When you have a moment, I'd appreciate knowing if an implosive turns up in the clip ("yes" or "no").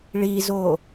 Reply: no